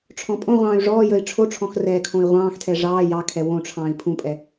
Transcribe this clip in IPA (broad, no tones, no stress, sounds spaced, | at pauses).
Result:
ʈ͡ʂʰ ɔ̃ pʼ õ ʁʷ ɑ̃ː y̯ ʐ ɔː j ə i̯ ʈ͡ʂʰ o ʈ͡ʂʰ ɔ̃ x r ɛː kʰ õ i̯ ʁʷ ɑ̃ː x tʰ ɛ ʐ ɑː j ɑ kʰ ɛ w õ ʈ͡ʂʰ ɑ̃ː i̯ pʰ ũ pʼ ɛ